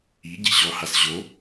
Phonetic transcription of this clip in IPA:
i ɟ i ɕ ɔ h a s ʑ o

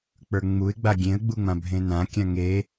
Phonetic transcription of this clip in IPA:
k͡p ə˞ ŋ͡m u ɪ̯ ɡ͡b a ɡʲ ẽ ə̯ ɡ͡b u ŋ͡m ã bʱ ẽ n ã kʲ ã ŋ e

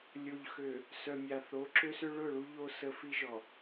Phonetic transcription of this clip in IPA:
lʲ o˨ ʎ x ø˨ | s œ˨ mʲ a˨ θ o˨˦ ǁ ø˦ s ʏ˦ ɭ ʊ˦˨ ɭ u˦ ʎ o˦ s ə˦ f i˦ ʒ ɔ˨

